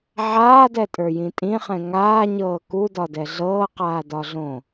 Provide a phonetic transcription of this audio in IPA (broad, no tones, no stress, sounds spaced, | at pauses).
ʕ aː d ɛ tʼ ə˞ j ĩ tʼ ĩ χ ɛ̃ ŋ aː ɲ ɤː k u d ɒ d ɛ ɮ ɤː q aː d ɒ ɮ õ